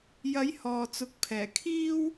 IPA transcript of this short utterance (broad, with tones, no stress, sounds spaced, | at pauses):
j ɐ˨˥ j h ɔː˨ t͡s ʊ˨˥ k̚ pʰ ɛː˨˩ kʰ iː˥ w